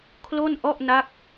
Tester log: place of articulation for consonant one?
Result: velar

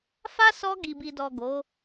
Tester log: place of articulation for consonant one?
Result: labial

